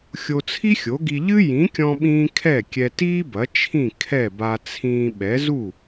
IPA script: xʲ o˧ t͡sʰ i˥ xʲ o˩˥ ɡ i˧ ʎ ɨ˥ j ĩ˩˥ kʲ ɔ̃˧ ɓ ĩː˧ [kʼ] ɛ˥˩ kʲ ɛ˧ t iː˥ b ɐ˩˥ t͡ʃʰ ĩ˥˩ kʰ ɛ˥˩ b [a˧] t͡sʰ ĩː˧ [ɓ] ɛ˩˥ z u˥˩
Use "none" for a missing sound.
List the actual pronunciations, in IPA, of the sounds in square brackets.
kʰ, a˧, ɓ

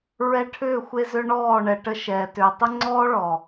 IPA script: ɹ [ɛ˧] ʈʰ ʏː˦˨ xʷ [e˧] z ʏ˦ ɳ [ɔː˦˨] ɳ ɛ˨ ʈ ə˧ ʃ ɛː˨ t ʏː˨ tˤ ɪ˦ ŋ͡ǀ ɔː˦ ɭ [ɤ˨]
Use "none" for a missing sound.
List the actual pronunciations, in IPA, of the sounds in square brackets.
ɛ˧, e˧, ɔː˦˨, ɔ˨

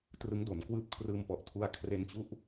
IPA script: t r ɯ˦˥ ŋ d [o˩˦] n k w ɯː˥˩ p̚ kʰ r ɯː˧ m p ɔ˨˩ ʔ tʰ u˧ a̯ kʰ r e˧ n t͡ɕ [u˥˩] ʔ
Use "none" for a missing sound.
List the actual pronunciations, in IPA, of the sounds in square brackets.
o˩˦, u˦˥

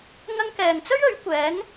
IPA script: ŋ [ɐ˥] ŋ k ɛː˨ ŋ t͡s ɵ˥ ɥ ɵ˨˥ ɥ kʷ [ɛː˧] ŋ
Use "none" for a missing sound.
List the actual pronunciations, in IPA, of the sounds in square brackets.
ɐ˧, ɛː˨˥

